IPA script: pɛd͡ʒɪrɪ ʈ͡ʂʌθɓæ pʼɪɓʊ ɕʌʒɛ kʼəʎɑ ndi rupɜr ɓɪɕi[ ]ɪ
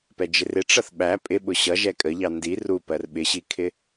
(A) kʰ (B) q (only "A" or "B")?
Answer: A